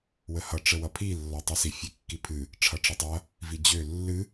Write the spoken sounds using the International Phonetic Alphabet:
wəhʌ ʈ͡ʂəwʌpʰi lːɔtˤʌsi fʲekːipʰɨ | ʈ͡ʂʰʌʈ͡ʂʌtˤʌ | vid͡ʑø lːɨ

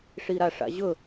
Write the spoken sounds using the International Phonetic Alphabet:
ʂiɾaʂa̰ʑɵ

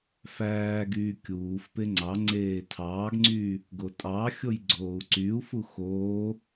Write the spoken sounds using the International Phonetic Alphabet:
fæːɡyː kʲuːfpe ŋ͡ǀɑ ŋ͡ǀeːtʰɑːɡŋ͡ǀyː | ɡotʼɑxʲoj ɡ͡ǀoːu̯ǀyu̯fu xoː

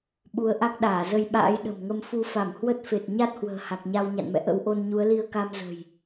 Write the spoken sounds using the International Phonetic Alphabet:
ɓu˨˦ə̯ʔa˦˥k̚ɗaː˧˩ zə˧jɓa̰ː˧˥jɗə̤˨˩mŋə˧m fu˧fa˧˩m hwə˦˥t̚fe˨˩t̚ ɲa˦˥t̚hwə̤ː˨˩ ha˨˩k̚ɲa˧w ɲa̰˧˨nmɛ̰˧˨ ʔə̰˧˥wʔo˧n ɲu˨˦ə̯li˧ə̯ka˧m zə̤˨˩j

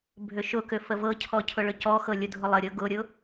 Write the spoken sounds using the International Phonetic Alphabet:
bʱʏʃʊkʏ fəvɤcʰɔ cʰʊɭʏcɔxɤ lʲʊdʱʊlˠəɾʲɤ ɡʊɾʲʊ

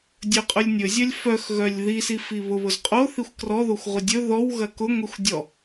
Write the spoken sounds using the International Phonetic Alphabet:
dʲɵqʼɵlʲnʲɵzʲœlʲ fœxɣœlʲ ði sifiβʊβʊz qʼoθixʷ krɔðoxʷ ʁʷədʲɵ ðɔw ɣɐkʊŋʷixʷ dʲɔ

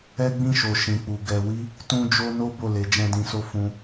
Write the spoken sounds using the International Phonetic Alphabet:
ɛ˦ɡ͡bĩ˦˨ʃo˨ ʃĩ˨k͡pu˨ ɡɛ˨wi˧ | tũ˦ d͡ʒo˦ no˦ bo˦˨ le˨˦d͡ʒɛ̃˦dĩ˧so˦ fũ˧

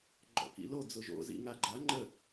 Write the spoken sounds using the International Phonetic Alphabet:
ɡ͡ǃɔ̰kḭlo d͡zʊʒo̰ zḭŋaɡ͡ǃa ŋ͡ǃə

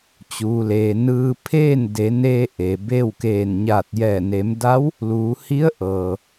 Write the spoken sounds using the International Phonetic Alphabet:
t͡ɕuː˩leː˩ nɯː˧pʰeː˥˨n de˩˧neː˧ ʔe˩be˥˨wkeː˧˩n ɲaː˧˩t̚jɛː˧˩ ne˩˧mda˧˥w | luː˩˧ hi˧˥ə̯ʔɤː˩

